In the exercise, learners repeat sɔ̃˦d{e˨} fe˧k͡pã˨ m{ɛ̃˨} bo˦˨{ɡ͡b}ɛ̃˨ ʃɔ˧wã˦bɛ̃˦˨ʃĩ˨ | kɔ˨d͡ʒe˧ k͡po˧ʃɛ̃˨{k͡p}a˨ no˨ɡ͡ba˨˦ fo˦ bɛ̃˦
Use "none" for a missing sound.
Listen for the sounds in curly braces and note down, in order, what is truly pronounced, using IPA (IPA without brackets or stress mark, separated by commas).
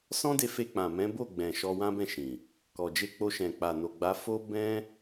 e˧, ɛ̃˨˦, ɡ͡b, k͡p